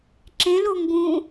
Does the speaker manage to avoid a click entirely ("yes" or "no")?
no